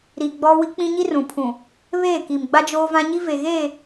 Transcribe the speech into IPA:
ɾ i˨ ɡ͡b ɔ˦ w i˦ k͡p ĩ˦ ɲ i˦ r ũ˨ pʰ ũ˨ | β eː˦˨ k i˨ m ɡ͡b a˦ d͡ʒ oː˦ v ã˦ ɲ i˦ v e˨ ɣ eː˦˨

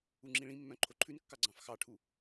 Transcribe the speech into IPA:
u ŋ͡ǁ ĩ ɭ ĩ mː œ̃ ǃʰ o ǃʰ ʉ n kː ɑ ɡ͡ǀ ɑ̃ f x ɑ ʈʰ u

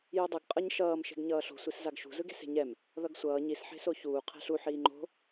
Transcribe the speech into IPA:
j u dˤ ɯ ɡ qʼ ʌ ɲ ʃ ʌː m ʃ e̤ ɡ ɲ ʌː ɬ o̤ sʷ i s z a ɡ ʃ ṳ z ɯ ɡ e̤ s e̤ ɲ ɛ m | ð ʌ ɡ sʷ ʌː ɲ i s ħ e̤ s o ç uː qʰ ɛ̤ ɬ u ħ iː ŋ͡ǃ o̤

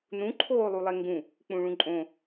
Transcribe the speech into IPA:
n ũ ǃʰ oː lˠ u lˠ e ŋ ɡ ũ | k͡p ũ ɭ ũ ǃʼ õ

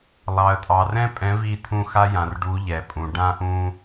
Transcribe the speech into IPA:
lˠ ɑ˨ ə̯ tʼ ɑ˨ r ɛ̃˦ pʼ ɛ̃˨˦ v i˦˨ t̪ʰ ũ˦˨ x a˦ j ã˨ r ɖ u˨˦ ʎ ɛ˨ pʼ ũ˨ ɖ ã˦ ʔ ũ˦

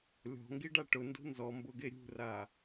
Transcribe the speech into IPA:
lʲ ɔ̤ ŋ ɡ i ɖ a ʈ ʊ n d ṳ n z ɔ m b ʊ ɡ e ɾʲ ṳ r a

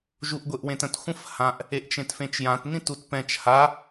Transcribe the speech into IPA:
ʒ u ʔ ɡʷ e ʔ w ẽ t ə̃ t xʷ ə̃ f h ã ʔ | e ʔ t͡ʃ ẽ t f ẽ t͡ʃ j ã t n ĩ t u t p ɛ̃ t͡ʃ h a

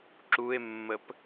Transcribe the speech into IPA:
ǁ u e̯ mː ə p

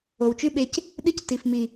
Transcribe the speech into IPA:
o˨ w t͡ʃ ʉ˦ ɓ e˧ c | ɗ ɨ˦ c t i˨ f m i˨

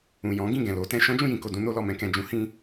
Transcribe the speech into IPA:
ũ˨ j ɔ̃˨˦ ɡ ĩ˦˨ ɡ ɛ̃˨ l o˨˦ t ɛ̃˧ ʃ ɔ̃˦ d͡ʒ ũ˦˨ j ĩ˨ k o˨ d ũ˧ n o˧ l ɔ˨ m ɛ̃˧ k ɛ̃˨ d͡ʒ ũ˨˦ h ĩ˧

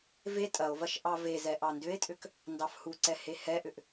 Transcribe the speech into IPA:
v e tʼ ɐ o̯ v ɐ ʃ ʔ ɑ v e z ɛ ʔ ɑ n d ʏ e̯ tʼ ʏ k | n d ɑ f h u ǀ ɛ h e h ɛ ʔ ʏ ʔ

